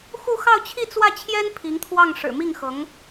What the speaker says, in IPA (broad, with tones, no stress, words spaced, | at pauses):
xu˥˧xɑ˥˧ʊ̯t͡ɕʰi˥˧ t͡swä˥˩t͡ɕʰjɛ˥n pʰi˧˥ŋt̪ʰwɑ˥˩ŋ ʂɻ̩˨˩mi˥˩ŋxɤ˧˥ŋ